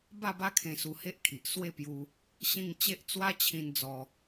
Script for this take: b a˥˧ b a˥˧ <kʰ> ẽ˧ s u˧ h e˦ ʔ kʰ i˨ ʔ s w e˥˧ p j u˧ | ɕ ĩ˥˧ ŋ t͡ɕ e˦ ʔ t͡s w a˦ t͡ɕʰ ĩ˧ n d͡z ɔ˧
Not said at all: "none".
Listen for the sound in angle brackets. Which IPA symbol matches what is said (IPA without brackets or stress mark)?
kʰ